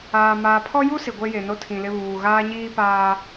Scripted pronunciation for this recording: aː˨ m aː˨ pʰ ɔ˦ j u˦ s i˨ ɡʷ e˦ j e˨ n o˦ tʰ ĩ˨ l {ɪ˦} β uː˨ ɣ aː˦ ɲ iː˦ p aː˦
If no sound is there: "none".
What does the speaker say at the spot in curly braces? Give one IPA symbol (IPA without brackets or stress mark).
ɪ˦